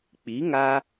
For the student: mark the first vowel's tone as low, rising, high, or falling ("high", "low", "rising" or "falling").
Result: rising